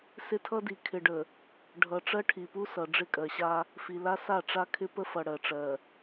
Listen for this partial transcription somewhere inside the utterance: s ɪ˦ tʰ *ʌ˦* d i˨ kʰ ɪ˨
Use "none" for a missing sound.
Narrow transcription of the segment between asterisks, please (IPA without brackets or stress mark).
ʌ˦